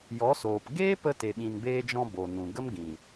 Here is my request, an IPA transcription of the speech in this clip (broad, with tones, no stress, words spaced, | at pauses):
jɔ˨˦soː˨p ɡeː˦pə˧ te˨ɓĩ˨nbeː˧d͡ʒɔ̃˧ bo˨nũ˨ɡə˦mɡĩ˨